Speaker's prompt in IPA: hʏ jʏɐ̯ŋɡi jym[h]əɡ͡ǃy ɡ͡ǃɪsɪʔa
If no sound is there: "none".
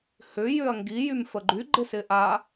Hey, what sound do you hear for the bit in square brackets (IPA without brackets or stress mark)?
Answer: f